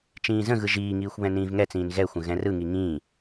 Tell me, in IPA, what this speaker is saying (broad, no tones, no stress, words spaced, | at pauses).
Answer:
t͡ʃĩːzə̃ɣɯ ʒiːŋiːxʷ βɛ̃nĩːvŋɛt͡sĩːn ɣɛxʷə̃ ɣɛ̃rɯŋi ŋĩː